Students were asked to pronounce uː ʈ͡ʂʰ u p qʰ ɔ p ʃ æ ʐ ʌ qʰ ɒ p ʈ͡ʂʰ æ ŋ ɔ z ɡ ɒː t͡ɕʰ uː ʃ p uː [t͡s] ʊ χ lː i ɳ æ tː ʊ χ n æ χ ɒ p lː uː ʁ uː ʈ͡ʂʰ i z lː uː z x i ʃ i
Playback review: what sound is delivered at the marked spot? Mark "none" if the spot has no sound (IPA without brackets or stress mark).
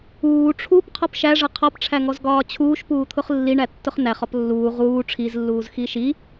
t̪ʰ